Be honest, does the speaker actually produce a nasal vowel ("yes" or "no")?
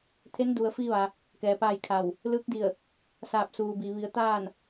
no